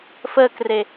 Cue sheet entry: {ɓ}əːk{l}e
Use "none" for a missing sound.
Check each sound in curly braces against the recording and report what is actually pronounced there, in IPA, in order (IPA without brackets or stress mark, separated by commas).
f, r